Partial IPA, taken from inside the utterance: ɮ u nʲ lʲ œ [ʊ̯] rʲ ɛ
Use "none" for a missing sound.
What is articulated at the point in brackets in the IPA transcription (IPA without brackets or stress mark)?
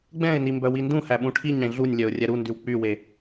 ʊ̯